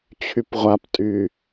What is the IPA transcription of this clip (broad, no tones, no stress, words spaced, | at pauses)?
t͡ɕʰypʁʷaptʼy